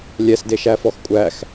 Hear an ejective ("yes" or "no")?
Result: yes